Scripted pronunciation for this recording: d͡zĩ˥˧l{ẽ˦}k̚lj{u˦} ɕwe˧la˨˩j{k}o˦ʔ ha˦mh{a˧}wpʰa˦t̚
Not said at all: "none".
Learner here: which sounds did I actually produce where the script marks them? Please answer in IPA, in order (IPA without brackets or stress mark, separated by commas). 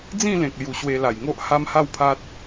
ẽ˨, u˨˩, ŋ, a˥˧